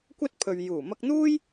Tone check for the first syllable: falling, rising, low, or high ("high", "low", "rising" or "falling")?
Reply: high